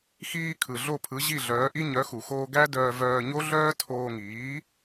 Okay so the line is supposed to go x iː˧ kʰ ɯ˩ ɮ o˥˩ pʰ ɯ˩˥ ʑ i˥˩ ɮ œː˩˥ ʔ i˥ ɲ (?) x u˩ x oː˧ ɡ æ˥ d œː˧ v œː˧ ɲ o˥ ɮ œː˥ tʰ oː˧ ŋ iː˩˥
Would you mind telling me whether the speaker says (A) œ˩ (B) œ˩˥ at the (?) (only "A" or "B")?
B